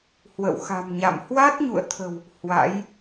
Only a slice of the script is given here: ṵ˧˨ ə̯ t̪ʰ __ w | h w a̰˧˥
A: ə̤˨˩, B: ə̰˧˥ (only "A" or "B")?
A